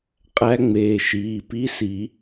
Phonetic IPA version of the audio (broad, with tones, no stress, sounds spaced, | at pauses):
qʼ æ˧˥ ŋ͡m eː˩˧˩ ʃ iː˩˧˩ p i˧˥˧ s i˨˩˦